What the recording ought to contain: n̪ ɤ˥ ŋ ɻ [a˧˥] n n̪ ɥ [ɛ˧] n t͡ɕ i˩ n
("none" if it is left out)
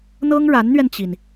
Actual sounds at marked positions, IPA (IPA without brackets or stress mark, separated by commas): a˧˥, ɛ˧